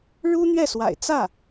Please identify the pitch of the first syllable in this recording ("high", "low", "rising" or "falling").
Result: high